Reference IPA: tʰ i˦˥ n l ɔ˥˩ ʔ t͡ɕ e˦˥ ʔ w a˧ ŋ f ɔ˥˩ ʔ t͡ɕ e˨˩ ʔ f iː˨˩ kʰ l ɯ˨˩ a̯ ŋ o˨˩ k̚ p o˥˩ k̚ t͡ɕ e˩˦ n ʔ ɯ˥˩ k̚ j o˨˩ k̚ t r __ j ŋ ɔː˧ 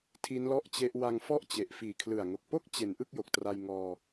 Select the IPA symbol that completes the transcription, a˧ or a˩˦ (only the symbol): a˧